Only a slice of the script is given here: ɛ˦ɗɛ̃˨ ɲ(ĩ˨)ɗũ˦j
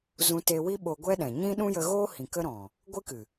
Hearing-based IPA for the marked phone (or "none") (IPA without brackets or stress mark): ĩ˦